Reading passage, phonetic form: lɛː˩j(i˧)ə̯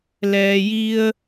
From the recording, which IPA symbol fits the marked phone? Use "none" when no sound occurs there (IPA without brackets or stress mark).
i˧